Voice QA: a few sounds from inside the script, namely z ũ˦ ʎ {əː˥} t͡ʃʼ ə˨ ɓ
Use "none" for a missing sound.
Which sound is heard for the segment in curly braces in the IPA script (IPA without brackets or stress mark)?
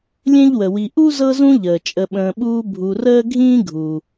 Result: əː˩